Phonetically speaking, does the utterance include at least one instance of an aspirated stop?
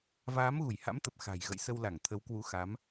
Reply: yes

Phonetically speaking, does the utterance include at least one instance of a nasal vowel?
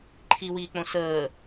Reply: yes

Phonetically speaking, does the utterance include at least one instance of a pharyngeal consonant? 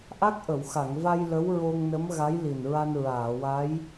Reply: no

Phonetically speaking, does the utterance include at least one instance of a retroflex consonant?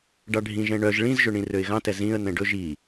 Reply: yes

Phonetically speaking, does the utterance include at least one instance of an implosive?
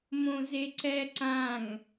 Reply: no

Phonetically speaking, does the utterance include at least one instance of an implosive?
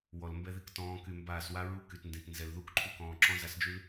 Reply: no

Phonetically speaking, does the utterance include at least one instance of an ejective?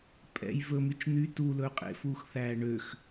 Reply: yes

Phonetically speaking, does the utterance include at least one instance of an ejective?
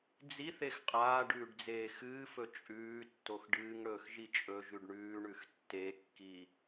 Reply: yes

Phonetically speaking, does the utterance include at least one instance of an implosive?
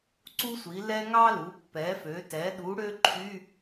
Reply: yes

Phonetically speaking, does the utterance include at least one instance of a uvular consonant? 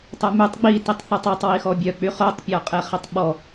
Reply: yes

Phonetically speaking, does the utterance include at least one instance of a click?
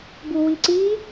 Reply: yes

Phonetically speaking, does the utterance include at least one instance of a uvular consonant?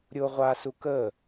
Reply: yes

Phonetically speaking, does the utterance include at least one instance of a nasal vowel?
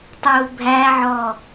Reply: no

